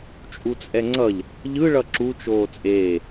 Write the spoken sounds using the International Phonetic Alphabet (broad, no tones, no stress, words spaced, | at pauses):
t͡ʃʼut͡sʼɛŋ͡ǀʌʎ | ʎɯ ɭʌǁu t͡ʃoːt͡sʼeː